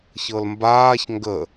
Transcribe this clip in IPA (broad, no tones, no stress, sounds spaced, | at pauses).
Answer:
ç ɤ l m b aː ç ŋ ɡ ə